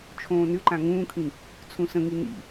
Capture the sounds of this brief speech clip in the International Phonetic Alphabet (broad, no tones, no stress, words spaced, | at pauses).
t͡ʃʰõːnʏǃã ŋũːkʰĩ | t͡sʰũsə̃ŋi nḭ